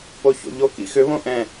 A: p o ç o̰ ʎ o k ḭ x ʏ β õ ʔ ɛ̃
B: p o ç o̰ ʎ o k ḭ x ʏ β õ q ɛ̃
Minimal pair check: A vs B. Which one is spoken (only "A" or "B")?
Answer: A